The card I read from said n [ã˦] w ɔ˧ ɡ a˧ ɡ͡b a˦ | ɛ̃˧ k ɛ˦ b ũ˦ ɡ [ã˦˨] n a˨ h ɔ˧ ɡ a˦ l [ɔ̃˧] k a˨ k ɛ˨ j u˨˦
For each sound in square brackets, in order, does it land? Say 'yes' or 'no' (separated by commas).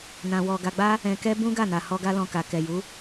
no, no, yes